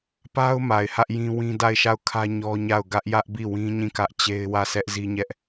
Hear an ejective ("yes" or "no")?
no